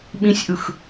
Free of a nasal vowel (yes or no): no